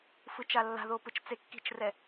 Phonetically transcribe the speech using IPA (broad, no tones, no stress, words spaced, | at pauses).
fɯt͡ʃalːa̤ðo pɯt͡ʃt͡sekːi̤t͡ʃrɛ